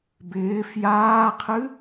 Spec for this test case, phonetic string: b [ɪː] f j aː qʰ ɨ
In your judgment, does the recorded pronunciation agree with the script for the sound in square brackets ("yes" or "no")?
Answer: yes